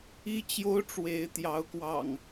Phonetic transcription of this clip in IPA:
i˦ t͡ɕ j o˦ ʊ̯ ʈ͡ʂ w e˨˦ ɪ̯ t̪ j ɑ˨˦ ʊ̯ k w ɑ̰˨˩ ŋ

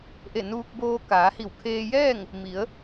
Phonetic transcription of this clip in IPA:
ʔ e˧˩ n uː˧ k̚ b oː˧ k aː˩˧ h i˧˩ w kʰ eː˧ j ɛː˥˨ ŋ | m i˩˧ ə̯

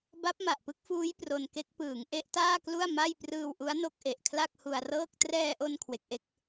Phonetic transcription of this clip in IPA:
b a˦˥ p̚ m a˨˩ ʔ p ɯ˦˥ k̚ f uː˦˥ j p r o˧ n k e˦˥ k̚ p ɯː˩˦ ŋ ʔ e˦˥ ʔ t aː˥˩ k l u˥˩ a̯ m a˥˩ j p r ɯː˧ w ʔ u˦˥ a̯ n o˦˥ k̚ ʔ e˨˩ ʔ kʰ l a˥˩ k̚ h u˧ a̯ r ɤː˥˩ k̚ t r ɛː˧ ʔ o˧ n kʰ w e˦˥ k̚ ʔ e˥˩ k̚

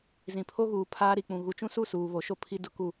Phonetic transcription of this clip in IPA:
z ĩ˨ pʰ o˦ ɣ uː˨ pʰ aː˦ ɾ i˨ k͡p ũ˨ ɣ u˨ t͡ʃ ũ˦ s u˦˨ s uː˨ β o˨ ʃ o˦ pʰ i˦ d ʊ˦ k u˦˨

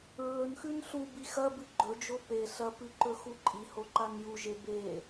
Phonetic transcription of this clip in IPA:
ɹ ɵ n x ʉ n ɬ u b i x ɐ b ɨ ɡ͡ǃ ɵ d͡ʒ o p e ɬ ɐ p ɨ ǃ ɵ x u ǃʼ i h o ǃ a n j u ʒ e b e

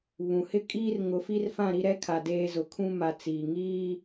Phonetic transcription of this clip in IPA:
β ũ˨ h ɪ˦ kʼ iː˦ r ŋ ʊ˨ f i˦ r f ã˦˨ ɾ i˦ ɾ ɛ˦ kʰ a˨ d eː˨ z ʊ˨ kʰ ũ˦ m a˨ t͡s iː˨ ŋ iː˦

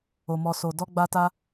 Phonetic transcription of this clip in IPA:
o˨ m ɔ˨ s o˨ d ɔ˧ ɡ͡b a˧ t a˧

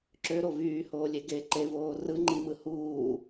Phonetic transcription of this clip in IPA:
ǁ ø ɾ o v yː h oː lʲ e ɡ e ǃ e v oː r ɯ ŋ͡ǃ i m ɯ h uː

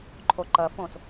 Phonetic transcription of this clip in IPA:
ǃʰ o ǃ ɐ f õ s

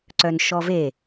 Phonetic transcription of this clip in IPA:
ǀ œ n ʃ ɔ v e

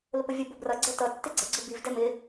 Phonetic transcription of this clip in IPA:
l ʊ p ə vʲ ʊ b ʊ b r ʌ ɡ͡ǀ ɛ t ʌ tː ɪ ɡ͡ǀ ə ɡ͡ǀ ʊ b i v d ɛ m ɪ

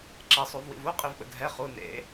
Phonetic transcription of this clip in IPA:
ǁ ɛ sˤ u v w ḭ v u qʼ i v ɓ ə̰ dʱ ɛ χ u n ḛ

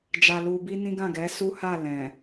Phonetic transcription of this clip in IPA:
d͡ʒ a˧ l u˧ b i˦ n ĩ˦ ɡ ã˦˨ ɡ ɛ˨˦ s u˦ h a˦˨ l ɛ̃˨

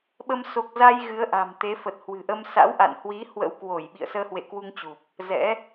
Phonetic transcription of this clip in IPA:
ɓ ə˧ m s o˨˩ k̚ z a˧ j ɣ ɨ˨˦ ə̯ ʔ a̤˨˩ m t̪ e˨˦ f ə˨˩ t̚ h w ɨ̤˨˩ ʔ ə˧ m s a̰˧˥ w ʔ a̰˧˨ n h w i˨˦ h w ə̰˧˥ w k w o˧˩ j ɓ ḭ˧˨ ə̯ s əː˧ h w ḛ˧˨ k w u˧ ŋ t͡ɕ u˨˩ p̚ | z ɛ̰˧˥

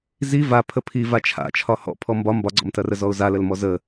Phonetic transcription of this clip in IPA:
z i v a pʰ ə pʰ i v a t͡ʃʰ a̰ t͡ʃʰ ɒ h ɔ̰ pʰ ɔ m b ɒ m b ɒ ɡ͡ǀ ɔ̰ m t ɐ r ə z ɔ ʊ̯ z a l ə l m ɔ z ə

